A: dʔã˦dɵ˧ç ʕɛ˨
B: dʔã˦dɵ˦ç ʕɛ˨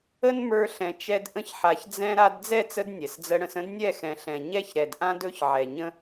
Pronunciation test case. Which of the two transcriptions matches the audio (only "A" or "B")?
B